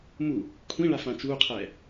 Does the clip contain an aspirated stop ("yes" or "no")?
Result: yes